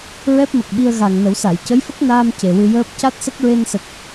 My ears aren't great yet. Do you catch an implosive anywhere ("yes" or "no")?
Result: yes